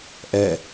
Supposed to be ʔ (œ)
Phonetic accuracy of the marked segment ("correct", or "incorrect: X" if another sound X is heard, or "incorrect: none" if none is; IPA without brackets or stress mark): incorrect: ɛ